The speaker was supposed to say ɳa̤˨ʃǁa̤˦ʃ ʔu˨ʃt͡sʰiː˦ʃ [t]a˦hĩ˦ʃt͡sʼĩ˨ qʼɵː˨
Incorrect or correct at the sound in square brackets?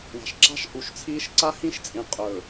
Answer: incorrect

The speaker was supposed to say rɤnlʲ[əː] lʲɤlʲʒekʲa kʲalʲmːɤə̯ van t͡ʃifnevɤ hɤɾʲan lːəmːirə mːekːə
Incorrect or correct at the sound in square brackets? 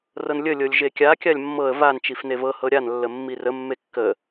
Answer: incorrect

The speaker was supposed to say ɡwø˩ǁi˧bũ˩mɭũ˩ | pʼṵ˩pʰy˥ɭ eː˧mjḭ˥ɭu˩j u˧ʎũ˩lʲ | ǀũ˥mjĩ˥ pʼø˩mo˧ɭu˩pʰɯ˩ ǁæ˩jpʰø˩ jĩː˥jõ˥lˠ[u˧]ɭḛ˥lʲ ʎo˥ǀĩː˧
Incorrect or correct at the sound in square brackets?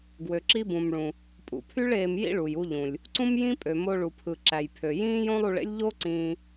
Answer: correct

